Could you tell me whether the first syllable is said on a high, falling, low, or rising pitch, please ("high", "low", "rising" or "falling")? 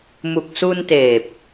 low